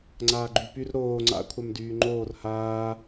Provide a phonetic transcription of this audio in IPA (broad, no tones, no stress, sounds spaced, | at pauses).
ŋ͡ǀ aː ɡ͡ǃ y p y r ɾ oː ŋ͡ǀ a̰ kʷʰ a m d yː ŋ͡ǃ oː r h aː